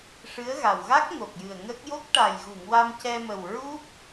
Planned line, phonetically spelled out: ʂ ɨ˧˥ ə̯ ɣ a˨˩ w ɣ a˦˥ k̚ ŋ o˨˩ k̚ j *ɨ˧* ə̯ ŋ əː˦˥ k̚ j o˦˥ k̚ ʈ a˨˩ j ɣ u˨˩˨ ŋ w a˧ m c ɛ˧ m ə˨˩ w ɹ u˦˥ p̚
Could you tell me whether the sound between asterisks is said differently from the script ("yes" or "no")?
yes